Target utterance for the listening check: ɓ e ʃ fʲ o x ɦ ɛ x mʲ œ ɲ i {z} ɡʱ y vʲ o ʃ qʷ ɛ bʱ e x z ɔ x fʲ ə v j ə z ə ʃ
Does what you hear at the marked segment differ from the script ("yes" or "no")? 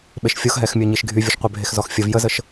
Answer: yes